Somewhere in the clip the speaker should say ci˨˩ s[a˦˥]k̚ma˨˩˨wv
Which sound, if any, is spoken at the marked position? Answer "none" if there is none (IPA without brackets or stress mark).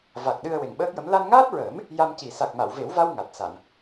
a˨˩